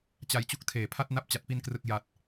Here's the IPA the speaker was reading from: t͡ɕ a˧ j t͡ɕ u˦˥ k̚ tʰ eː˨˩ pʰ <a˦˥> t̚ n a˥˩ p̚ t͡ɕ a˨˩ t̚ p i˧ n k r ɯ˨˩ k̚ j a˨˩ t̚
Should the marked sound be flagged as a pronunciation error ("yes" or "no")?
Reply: yes